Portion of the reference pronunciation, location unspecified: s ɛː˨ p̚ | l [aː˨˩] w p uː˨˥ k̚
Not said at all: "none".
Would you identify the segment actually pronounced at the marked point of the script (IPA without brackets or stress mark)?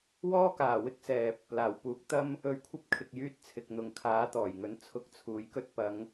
aː˨˩